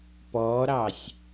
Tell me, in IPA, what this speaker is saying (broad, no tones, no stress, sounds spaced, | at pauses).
p ɔ ɾ ɑ sʲ